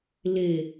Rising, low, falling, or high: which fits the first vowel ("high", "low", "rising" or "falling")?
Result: low